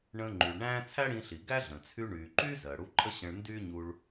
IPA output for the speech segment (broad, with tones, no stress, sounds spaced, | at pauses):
ɳ ə̃ː˧ ŋ͡ǃ y˩ ɭ ɳ æ̃ː˥ t͡sʰ æ˥ ɽ ĩ˧ ɬ i˩ ɡ æ˥ ɮ ə̃ː˩ t͡sʰ y˧ ɳ yː˩ ǃ yː˥ z ɜ˩ ɽ u˧ ǃʼ ə˥ ɕ ə̃˧ ɭ n d y˥ ɲ u˧ ɭ